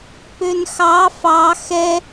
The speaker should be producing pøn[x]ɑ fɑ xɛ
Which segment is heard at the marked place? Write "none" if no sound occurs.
x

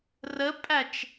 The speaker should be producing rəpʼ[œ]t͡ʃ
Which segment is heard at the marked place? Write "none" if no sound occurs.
æ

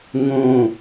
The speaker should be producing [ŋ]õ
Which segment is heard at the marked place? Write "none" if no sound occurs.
ŋ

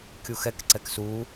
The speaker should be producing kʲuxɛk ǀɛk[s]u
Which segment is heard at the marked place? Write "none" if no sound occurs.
s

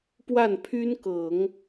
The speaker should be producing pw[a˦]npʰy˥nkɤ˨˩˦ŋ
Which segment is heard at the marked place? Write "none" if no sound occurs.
a˥˩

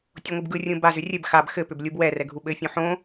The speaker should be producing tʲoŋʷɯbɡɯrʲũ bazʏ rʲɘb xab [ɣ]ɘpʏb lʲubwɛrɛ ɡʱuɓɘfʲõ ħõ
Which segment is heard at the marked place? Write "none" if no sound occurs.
x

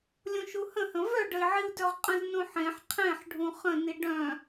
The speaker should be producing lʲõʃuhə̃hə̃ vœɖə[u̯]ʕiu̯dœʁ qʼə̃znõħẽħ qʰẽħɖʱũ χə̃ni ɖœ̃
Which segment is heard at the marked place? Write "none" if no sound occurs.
i̯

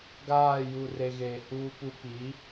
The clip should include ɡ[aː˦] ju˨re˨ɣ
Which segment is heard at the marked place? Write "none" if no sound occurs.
aː˦˨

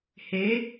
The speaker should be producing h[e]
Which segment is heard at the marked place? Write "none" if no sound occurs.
e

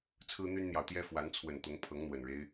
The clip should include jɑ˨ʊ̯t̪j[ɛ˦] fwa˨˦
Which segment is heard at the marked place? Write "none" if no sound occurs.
ɛ˦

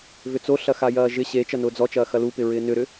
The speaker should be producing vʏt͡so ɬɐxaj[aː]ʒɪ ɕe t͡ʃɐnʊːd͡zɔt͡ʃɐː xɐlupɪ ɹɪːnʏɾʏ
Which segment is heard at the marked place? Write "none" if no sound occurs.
ɐː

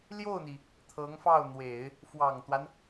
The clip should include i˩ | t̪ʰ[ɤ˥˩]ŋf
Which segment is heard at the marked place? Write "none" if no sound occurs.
ɤ˧˥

